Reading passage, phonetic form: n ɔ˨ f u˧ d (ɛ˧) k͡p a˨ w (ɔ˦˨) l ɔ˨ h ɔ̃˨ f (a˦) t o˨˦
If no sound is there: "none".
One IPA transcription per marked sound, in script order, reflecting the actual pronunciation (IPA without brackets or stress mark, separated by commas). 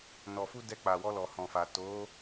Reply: ɛ˧, ɔ˧, a˨